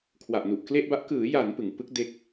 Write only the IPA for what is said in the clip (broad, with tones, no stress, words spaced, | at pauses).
kʰwa˨˩ʔnu˨˩ʔkle˥˩ʔba˦˥ʔ kɯː˩˦ja˩˦n pɯ˩˦ŋ pɯ˦˥k̚ de˥˩k̚